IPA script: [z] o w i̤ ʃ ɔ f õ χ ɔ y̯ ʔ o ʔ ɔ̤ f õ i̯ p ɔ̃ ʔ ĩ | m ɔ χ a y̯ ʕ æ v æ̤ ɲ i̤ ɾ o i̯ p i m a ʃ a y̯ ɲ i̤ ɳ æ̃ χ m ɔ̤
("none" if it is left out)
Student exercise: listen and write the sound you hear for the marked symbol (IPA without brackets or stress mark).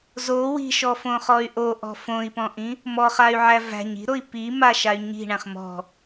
z